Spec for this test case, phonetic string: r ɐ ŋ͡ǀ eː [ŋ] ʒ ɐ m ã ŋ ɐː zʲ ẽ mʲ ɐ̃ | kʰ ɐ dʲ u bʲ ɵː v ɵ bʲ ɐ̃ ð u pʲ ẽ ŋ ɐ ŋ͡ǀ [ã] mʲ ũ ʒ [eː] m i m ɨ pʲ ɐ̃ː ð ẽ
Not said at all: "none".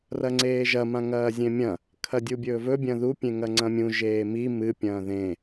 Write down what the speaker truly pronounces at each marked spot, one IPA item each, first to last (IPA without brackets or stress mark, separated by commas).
none, ɐ̃, eː